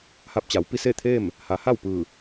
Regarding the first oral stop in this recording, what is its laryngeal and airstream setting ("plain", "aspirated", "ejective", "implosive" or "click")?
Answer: plain